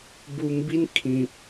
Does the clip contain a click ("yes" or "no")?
no